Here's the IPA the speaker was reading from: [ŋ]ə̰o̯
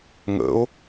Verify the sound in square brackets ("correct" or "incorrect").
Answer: correct